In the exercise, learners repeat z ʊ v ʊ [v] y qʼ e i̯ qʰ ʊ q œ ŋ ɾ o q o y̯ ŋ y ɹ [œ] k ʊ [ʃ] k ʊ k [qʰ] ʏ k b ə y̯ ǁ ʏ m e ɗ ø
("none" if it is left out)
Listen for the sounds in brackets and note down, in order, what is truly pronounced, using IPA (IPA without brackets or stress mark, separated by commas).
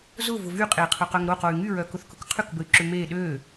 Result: v, œ, θ, qʰ